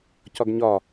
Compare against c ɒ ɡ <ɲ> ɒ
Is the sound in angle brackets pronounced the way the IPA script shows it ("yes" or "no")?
yes